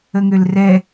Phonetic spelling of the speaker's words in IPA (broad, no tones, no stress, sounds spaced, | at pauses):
ə ŋ ø l r ɛ